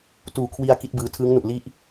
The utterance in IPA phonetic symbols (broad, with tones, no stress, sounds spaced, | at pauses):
t uː˨˩ kʰ w i˧ a̯ k i˦˥ t̚ b ɯː˧ tʰ ɯː˦˥ ŋ n u˨˩ ʔ l i˥˩ ʔ